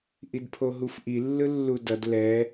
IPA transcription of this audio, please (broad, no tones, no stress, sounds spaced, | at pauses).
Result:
ʔ i d pʰ o ɦ u f ʔ i lː ɯ lː u d ʌ d l ɛ